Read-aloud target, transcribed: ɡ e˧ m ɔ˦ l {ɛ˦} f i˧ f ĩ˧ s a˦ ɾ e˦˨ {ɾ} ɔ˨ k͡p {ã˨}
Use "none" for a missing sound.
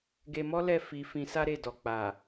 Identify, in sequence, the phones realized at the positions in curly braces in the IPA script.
ɛ˦˨, d, a˨

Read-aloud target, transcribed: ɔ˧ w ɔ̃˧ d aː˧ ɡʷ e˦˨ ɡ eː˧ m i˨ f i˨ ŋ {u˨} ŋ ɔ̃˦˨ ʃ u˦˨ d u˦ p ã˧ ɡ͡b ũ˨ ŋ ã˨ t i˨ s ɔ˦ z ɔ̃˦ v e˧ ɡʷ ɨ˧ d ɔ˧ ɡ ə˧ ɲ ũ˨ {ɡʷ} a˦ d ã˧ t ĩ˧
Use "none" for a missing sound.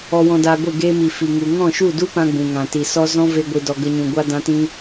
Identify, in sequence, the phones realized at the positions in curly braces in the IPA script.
u˨, ɡʷ

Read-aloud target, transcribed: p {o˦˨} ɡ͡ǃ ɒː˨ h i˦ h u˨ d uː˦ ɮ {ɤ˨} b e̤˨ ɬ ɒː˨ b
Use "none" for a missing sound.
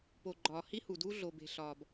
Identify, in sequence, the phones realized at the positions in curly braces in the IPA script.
o˨, o˨

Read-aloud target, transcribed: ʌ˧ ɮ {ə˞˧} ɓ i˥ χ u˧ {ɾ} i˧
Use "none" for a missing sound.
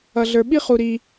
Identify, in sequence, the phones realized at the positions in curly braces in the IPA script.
ə˞˧, ɾ

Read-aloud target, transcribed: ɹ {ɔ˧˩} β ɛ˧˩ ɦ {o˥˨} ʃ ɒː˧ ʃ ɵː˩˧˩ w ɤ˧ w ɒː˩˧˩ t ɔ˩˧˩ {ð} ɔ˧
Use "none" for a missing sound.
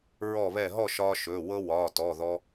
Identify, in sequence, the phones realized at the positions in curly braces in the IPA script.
ɔ˧˩, ɔ˥˨, ð

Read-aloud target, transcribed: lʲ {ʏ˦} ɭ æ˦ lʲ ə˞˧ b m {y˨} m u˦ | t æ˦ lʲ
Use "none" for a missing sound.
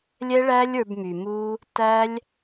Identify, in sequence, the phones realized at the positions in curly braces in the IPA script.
ɛ˦, y˨

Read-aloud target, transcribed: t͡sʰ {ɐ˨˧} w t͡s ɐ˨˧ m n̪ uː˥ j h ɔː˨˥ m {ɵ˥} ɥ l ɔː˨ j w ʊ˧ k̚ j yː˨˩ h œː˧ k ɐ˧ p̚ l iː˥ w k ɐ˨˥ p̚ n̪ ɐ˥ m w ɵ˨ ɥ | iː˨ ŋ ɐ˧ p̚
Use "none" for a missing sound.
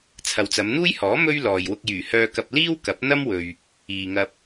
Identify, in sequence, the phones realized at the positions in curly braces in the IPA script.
ɐ˨, ɵ˥

